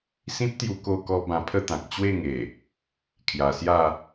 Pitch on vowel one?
high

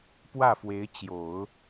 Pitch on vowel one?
falling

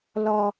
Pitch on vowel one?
high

